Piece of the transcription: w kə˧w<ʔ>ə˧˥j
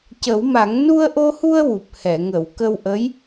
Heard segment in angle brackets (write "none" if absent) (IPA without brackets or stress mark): ʔ